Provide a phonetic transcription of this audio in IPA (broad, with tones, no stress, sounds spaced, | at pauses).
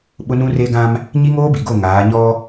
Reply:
ɓ ʊ˦ n ũ˦ r e˦ ɡ ã˦ m | ɲ i˦ ŋ oː˦ b i˨ ɡ o˦˨ ŋ aː˨˦ ɲ ɔ˦